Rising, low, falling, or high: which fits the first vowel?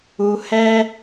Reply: low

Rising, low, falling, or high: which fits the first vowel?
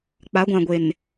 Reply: rising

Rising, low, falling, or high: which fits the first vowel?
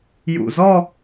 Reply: low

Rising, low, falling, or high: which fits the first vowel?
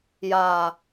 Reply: low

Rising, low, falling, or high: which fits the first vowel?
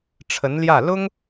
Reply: rising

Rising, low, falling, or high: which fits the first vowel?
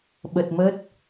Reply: low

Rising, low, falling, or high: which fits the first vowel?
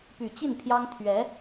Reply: low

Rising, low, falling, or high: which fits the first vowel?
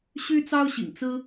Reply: high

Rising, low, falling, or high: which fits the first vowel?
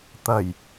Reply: low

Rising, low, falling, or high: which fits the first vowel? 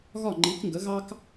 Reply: falling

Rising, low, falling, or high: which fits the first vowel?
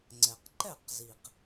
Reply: low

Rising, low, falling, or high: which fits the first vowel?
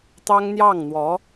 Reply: high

